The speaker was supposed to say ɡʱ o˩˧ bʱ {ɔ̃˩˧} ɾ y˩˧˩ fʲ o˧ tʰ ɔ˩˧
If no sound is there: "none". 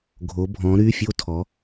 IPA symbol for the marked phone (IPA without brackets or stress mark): ɔ̃˩˧